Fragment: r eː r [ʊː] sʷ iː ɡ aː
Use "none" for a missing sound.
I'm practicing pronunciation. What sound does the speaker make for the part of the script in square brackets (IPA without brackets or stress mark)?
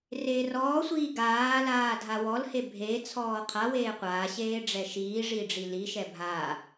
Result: ɔː